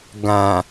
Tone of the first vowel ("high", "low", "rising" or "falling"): low